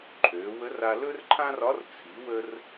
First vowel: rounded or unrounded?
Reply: rounded